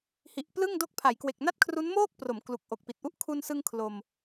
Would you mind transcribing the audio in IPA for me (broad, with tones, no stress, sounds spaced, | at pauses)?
h i˨˩ ʔ p l ɯ˥˩ ŋ d o˦˥ k̚ pʰ a˩˦ j k w e˨˩ k̚ n a˥˩ t̚ kʰ r u˦˥ n m oː˥˩ k̚ p r o˩˦ m k l u˨˩ k̚ ʔ o˨˩ k̚ p i˨˩ t̚ ʔ u˥˩ ʔ kʰ u˧ n s ɯ˧ ŋ kʰ l o˧ m